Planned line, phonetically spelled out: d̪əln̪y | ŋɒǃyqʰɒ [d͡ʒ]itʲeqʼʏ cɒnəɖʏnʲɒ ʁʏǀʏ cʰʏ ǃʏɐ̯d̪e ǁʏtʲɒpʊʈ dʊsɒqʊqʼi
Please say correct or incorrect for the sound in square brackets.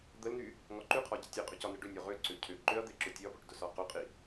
incorrect